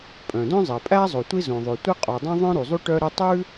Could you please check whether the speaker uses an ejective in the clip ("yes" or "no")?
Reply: yes